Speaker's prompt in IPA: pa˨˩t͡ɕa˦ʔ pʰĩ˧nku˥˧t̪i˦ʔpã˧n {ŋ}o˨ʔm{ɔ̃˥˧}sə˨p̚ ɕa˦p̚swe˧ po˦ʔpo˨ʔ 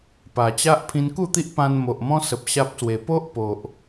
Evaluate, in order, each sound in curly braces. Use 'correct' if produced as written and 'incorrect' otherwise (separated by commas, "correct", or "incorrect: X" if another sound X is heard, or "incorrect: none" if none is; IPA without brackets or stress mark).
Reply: incorrect: m, incorrect: ɔ̃˧